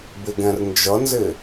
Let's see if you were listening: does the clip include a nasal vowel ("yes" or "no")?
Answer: yes